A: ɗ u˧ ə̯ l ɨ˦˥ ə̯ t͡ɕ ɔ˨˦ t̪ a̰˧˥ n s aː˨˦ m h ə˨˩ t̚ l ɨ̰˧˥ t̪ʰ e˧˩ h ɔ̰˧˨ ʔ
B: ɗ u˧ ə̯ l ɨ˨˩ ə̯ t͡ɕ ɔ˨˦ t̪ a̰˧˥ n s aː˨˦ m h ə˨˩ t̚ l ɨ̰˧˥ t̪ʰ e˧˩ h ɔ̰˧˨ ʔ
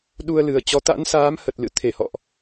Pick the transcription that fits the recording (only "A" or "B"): B